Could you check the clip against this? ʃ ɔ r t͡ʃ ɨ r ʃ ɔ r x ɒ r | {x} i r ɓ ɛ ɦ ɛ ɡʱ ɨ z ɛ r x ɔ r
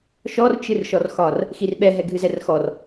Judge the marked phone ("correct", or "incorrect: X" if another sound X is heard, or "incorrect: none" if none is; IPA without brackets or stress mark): correct